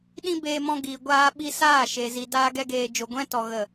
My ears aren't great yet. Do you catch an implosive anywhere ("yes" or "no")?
yes